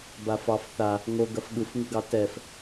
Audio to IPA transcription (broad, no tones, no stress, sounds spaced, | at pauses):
b a f ɑ f θ a | ŋ o ɡ ɐ f ɠ ɯ f ŋ ɯ ɡ ɑ t ɛ f